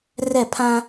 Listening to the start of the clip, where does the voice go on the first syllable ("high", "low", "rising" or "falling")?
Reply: falling